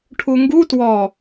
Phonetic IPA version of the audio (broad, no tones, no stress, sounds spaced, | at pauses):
ʈʰ u ŋ ɡ u t w ɔ